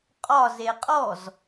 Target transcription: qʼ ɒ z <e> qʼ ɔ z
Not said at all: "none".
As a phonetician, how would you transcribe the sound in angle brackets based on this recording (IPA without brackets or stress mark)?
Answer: e